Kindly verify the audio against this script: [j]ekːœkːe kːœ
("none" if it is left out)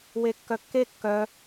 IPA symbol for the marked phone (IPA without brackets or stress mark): w